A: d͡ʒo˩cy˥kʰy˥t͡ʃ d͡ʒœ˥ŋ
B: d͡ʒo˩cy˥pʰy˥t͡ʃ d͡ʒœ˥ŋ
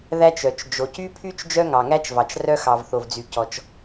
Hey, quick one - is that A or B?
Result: B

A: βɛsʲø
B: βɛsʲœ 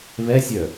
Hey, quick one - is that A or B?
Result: B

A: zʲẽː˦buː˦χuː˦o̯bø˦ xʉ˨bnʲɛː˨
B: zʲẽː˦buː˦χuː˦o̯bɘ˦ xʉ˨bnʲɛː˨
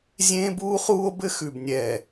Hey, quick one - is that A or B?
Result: B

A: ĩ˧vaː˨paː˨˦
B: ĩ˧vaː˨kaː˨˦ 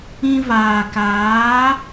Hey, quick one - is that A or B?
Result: B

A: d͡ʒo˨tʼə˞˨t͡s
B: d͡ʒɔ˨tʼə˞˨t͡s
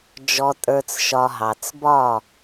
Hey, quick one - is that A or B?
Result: B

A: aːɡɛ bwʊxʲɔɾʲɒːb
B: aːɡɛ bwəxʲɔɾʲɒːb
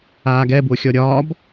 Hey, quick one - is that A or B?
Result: A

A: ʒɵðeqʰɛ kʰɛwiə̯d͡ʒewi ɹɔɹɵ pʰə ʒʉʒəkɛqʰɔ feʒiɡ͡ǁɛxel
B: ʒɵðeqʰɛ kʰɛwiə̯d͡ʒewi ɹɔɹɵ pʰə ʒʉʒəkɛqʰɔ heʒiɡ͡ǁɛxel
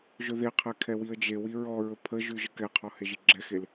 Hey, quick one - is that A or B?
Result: B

